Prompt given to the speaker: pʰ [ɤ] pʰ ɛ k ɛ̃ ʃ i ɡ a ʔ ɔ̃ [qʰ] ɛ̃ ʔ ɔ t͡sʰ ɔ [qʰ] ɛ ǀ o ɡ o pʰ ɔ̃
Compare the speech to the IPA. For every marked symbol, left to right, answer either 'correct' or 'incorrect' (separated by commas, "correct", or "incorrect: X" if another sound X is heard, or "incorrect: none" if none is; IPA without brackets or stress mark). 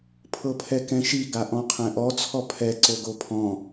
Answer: correct, correct, incorrect: pʰ